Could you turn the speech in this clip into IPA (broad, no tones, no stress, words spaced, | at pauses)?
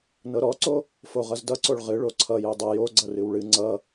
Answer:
nɤɾɔǀo | foʁʌzdʌǀoɭ ʁɨ ɭoǀʰʌ jødˤʌ joɡ͡ǀʌ rɨwɭɨ ŋ͡ǀʌ